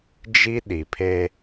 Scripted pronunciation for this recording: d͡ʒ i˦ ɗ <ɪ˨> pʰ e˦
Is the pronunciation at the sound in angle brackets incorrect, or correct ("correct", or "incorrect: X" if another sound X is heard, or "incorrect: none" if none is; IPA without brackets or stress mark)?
incorrect: i˨